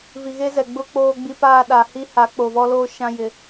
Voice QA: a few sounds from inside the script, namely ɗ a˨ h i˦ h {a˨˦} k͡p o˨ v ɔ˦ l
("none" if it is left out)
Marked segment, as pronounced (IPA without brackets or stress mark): a˨˦